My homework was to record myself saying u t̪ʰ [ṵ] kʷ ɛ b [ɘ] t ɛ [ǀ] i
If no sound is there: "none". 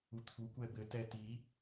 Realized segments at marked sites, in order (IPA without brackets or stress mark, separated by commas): u, ɘ, t